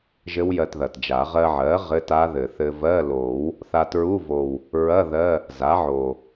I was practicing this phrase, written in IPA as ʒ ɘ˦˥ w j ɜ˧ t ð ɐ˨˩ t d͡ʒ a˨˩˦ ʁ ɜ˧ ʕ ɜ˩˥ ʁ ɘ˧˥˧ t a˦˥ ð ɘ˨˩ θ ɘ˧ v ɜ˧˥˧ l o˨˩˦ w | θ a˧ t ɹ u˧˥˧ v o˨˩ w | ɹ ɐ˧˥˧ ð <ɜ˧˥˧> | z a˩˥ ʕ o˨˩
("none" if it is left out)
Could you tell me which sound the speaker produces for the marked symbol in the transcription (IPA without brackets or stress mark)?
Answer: ɜ˧˥˧